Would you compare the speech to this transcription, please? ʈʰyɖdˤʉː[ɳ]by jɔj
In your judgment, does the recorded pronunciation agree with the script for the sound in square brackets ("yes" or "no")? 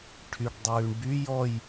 yes